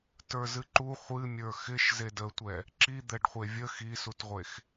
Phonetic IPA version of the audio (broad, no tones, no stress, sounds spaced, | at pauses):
t ə˞ z ɨ ǃ u χʷ ɨ mʲ ə˞ x ɪ ʃ z e d ə tʷ ɛ | ǁ i d̪ ɛ ɖ χʷ e vʲ ə x i s u t ʁʷ e x